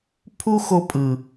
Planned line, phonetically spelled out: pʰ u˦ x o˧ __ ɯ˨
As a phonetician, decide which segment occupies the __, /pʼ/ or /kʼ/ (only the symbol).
pʼ